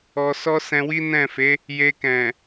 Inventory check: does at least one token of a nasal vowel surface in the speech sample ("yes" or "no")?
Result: yes